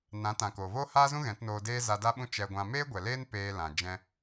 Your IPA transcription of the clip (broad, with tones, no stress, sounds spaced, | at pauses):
n ã˨˦ t ã˨ k oː˨ v oː˦ h aː˦ z ũ˦ ɣ ɛ̃˨˦ t n oː˧ d eː˦ z a˧ d a˦ ɓ ũ˦ t͡ʃ ɛ˧ ɡʷ ã˧ m eː˦ ɡʷ ɛ˨ l eː˦ n p eː˧ l ã˨ d͡ʒ ɛ̃˧